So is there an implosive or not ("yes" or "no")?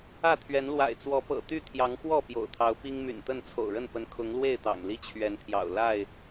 no